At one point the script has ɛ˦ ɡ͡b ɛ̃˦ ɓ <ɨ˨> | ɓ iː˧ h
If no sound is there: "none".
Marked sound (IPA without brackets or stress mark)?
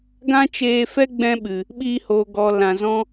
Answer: ɨ˨